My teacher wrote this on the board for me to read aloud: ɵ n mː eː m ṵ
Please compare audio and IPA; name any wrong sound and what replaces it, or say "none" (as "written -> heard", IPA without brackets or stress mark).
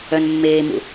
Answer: ɵ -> œ